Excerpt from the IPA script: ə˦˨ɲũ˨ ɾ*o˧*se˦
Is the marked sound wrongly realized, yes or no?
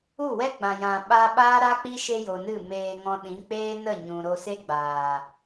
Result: no